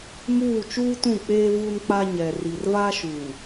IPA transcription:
muː˦˨ t͡ʃuː˦tũ˦˨k͡peː˦ vu˦nk͡pa˦ ɲɛ˨ ri˨rva˦ʃuː˨

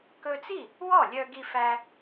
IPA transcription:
kɵ˧t͡si˥˩ | wɔ˥˩lʲœ˧ ɡi˧fæ˧

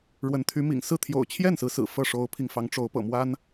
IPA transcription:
ɻwə˧˥nt̪ʰy˧˥ mḭ˨˩ŋsɹ̩˥˩ t̪ʰjo̰˨˩ʊ̯t͡ɕʰjɛ˥˩n sɹ̩˧˥sɹ̩˨˩fɤ˥˩ ʂo˧˥ʊ̯pʰi˧ŋfɑ˧˥ŋʈ͡ʂo˧˥ʊ̯ pɤ̰˨˩mwa˥n

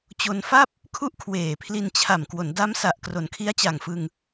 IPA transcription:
t͡ɕo˧nfa˥˩p̚ | kʰu˥˩ʔkʰweː˨˩pʰli˧nt͡ɕʰa˨˩m kwo˩˦n da˦˥msa˨˩ʔkro˩˦n kʰi˦˥a̯t͡ɕa˨˩ŋfɯ˧ŋ

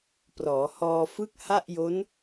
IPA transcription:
prɔː˩˦hɔː˧ fɯ˥˩k̚ha˥˩ʔjo˦˥n

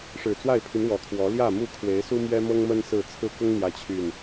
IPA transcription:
ʂɻ̩˨˩t͡swa˥˨ɪ̯pʰy˨˦n wɔ˨˦kʰwɔ˨˦ ljä˥˨mu˥˨ kʰwe˨˦ɪ̯su˦ mɥɛ˦mɤ˦ŋmə˦n sɹ̩˥˨ t͡sʰɹ̩˦ kʊ˦ŋn̪jä˨˦ t͡ɕʰy˨˩n

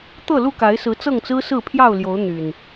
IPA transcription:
t̪ɤ˥˨lu˥˨ka˨˦ɪ̯sɹ̩˨˦ t͡sɤ˥˨ŋt͡sɹ̩˦sɹ̩˥˨ pʰjɑ˥˨ʊ̯ljo˨˦ʊ̯ n̪y˨˩n

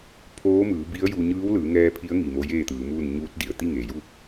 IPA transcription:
pʰoː˧˥mɯː˩˧bi˧˥ə̯ ju˧ ɲɯː˧˥wlɯː˩˧ŋɛː˧ pʰi˧˥ə̯ŋi˩ mo˧˥jeː˥˨t̪ɯː˩˧muː˥˨n ɲuː˧˥t̚di˩ə̯ t̪i˥˨ŋeː˩ju˥˨

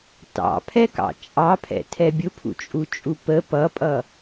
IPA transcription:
tɑ̰pʰɛkɑ̰ t͡ʃʼɑpʰɛ̰tʰɛ bʲʊpʰṵt͡ʃʼut͡ʃʼu pə pʌpʼʌ

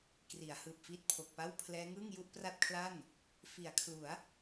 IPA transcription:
kri˩˦a̯hɯː˨˩p̚ fiː˦˥t̚pʰo˨˩k̚pa˥˩w pʰlɛː˦˥ŋɯː˥˩ŋ ju˥˩ʔpra˥˩t̚kʰla˥˩n | fi˩˦a̯kʰlu˩˦a̯

